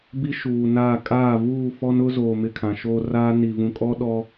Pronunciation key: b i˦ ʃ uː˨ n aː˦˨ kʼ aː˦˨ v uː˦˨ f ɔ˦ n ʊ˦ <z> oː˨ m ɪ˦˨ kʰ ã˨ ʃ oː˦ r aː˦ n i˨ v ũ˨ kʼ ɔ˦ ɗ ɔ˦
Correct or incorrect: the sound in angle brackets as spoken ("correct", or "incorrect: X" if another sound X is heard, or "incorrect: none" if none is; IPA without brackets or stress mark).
correct